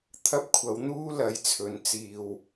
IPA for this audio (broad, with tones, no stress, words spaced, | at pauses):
t̪ʰɐ˥p̚kʷʰɐ˨˥w n̪uː˥lɐ˨˧j t͡sʰɵ˨˧n t͡siː˨w